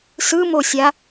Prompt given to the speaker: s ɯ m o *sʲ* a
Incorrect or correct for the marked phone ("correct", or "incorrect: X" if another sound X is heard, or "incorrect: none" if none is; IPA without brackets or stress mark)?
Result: correct